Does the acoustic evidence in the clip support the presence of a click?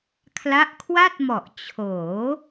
no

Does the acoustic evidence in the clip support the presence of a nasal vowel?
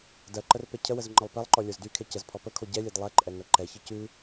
no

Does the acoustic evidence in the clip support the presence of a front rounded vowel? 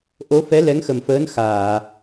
no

